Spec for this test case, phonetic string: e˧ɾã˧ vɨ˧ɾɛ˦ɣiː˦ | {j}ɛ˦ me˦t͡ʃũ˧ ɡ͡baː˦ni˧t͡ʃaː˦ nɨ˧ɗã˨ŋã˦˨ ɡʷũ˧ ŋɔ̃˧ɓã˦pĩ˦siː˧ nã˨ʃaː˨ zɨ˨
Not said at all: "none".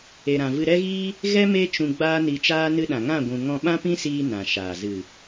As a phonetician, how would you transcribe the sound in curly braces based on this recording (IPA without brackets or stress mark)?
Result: ɣ